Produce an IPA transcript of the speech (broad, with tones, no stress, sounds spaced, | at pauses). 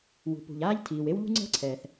w ṳ˩ p ṳ˩ ʎ aː˥ ʎ tʰ iː˩ w e˥ w ʎ ṳ˥ ŋ͡ǀ ɛ̤˥ ǀʰ ɛː˩ θ